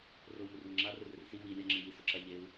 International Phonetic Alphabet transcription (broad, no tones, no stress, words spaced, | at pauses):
rou̯morwʊŋ͡ǁa rʊrɪrsi wi lʲaŋ͡ǁɪŋi sʊǁaʎeu̯